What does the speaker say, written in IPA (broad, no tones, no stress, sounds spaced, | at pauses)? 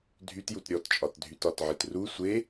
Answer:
dʱ y t j u t ɾʲ ɔ t t͡ʃʼ ɒ t dʱ y t ɒ t ʕ i t r u sʷ e